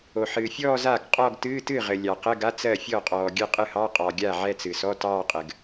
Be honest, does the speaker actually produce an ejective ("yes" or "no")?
yes